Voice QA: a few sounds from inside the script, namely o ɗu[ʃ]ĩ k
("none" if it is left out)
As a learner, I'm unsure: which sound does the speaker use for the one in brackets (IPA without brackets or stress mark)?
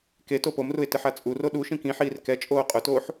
ʃ